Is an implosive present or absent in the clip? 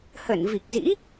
absent